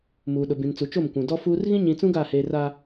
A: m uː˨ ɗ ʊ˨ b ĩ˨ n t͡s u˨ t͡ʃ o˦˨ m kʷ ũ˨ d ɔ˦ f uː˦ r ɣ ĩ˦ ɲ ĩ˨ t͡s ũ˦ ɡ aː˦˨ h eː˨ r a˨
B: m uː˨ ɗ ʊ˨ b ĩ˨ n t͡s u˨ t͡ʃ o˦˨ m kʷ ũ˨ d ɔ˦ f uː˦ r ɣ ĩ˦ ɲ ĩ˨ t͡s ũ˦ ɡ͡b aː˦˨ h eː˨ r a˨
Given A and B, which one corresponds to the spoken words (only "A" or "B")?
A